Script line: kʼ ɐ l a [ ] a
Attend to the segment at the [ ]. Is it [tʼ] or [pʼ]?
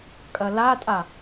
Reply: tʼ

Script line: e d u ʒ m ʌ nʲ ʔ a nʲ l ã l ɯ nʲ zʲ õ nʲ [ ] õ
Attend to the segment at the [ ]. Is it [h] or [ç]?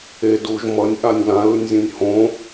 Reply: h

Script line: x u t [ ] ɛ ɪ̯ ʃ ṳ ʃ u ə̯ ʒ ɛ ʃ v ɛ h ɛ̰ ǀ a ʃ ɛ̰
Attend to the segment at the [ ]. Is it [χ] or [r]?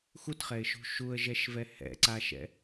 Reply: χ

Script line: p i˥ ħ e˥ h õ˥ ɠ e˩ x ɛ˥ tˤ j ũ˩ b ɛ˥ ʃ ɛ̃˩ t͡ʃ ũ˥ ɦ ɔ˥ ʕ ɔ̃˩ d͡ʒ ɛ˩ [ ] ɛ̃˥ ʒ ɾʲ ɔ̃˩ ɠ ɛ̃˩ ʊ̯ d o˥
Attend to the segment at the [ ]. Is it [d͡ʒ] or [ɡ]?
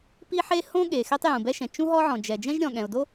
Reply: d͡ʒ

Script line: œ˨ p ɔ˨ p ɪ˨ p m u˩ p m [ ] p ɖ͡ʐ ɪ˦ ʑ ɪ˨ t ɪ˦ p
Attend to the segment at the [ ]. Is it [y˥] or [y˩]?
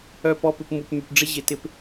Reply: y˩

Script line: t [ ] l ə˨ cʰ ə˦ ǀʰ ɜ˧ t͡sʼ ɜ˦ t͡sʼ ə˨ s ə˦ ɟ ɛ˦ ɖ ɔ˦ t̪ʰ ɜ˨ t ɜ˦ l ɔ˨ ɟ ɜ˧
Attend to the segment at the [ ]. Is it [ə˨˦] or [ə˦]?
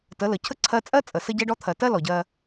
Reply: ə˨˦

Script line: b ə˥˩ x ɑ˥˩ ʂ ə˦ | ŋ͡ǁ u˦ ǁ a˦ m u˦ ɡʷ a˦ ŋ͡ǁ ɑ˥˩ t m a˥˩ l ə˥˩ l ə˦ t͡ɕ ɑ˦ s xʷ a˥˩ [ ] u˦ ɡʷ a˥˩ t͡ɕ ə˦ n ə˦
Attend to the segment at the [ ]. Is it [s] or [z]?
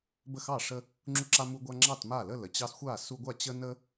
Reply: s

